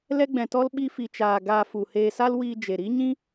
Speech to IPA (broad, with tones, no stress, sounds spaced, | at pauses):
l ɛ˦ ɡ͡b ɛ̃˧ t ɔ˦ l ɓ i˧ f i˨ t͡ʃ aː˨ ɡ aː˧ f u˨ h eː˧ s a˦ l w iː˧ d͡ʒ e˨ ɾ i˦ ɲ ĩ˦